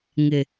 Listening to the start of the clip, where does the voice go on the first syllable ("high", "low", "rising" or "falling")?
low